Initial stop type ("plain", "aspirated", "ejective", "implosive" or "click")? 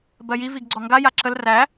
plain